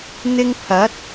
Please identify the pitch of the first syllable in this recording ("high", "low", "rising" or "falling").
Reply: high